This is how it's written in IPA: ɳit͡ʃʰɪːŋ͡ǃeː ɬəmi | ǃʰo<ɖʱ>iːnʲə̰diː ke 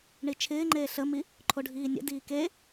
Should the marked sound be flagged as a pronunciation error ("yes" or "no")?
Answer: no